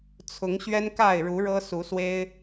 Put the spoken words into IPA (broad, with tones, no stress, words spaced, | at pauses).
t͡sʰʊ˨˦ŋ ɕɥɛ˦nka˥˨ɪ̯ɻu˨˦ ɻɤ˦su˨˦swe˦ɪ̯